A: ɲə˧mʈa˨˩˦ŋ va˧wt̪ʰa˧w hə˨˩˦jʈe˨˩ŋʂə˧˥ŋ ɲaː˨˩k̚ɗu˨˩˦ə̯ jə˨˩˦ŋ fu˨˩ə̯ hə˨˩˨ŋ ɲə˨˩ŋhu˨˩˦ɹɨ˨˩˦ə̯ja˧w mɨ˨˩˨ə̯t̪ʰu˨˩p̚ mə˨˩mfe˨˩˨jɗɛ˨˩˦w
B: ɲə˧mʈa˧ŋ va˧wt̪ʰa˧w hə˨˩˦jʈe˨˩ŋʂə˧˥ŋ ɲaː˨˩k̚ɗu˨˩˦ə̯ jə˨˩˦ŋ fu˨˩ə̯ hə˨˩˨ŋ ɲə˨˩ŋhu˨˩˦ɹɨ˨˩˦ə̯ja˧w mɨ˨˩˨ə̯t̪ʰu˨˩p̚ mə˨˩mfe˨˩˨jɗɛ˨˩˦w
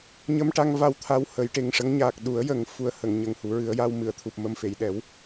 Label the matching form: B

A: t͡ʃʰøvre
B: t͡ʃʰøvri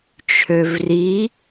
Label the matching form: B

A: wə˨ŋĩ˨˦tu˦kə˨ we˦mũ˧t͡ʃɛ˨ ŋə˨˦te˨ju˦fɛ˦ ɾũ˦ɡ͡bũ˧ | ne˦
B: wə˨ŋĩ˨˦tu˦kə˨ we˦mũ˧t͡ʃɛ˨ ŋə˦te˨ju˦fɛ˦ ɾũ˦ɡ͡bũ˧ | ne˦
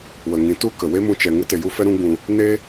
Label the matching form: B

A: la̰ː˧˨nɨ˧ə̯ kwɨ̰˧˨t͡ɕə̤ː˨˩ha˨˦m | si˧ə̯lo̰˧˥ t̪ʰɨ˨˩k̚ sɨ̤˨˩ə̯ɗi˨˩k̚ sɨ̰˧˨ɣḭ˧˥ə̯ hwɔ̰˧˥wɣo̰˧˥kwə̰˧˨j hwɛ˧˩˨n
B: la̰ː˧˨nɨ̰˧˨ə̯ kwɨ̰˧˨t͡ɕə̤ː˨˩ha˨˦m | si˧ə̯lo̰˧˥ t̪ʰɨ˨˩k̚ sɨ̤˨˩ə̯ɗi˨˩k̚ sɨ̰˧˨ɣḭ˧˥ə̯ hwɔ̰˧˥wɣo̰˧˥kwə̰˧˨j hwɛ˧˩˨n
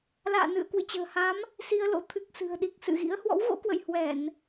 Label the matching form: B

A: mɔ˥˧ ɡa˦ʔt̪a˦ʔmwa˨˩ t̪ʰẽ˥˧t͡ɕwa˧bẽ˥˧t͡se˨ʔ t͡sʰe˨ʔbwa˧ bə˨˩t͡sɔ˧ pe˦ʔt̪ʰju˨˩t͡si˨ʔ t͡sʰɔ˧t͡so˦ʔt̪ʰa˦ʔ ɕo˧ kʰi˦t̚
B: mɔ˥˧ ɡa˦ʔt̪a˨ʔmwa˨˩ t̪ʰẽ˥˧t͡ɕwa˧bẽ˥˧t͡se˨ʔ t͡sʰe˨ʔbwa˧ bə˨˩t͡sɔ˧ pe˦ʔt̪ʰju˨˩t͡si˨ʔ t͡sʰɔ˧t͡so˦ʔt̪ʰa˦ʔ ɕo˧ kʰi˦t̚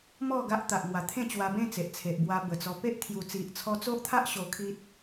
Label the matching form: B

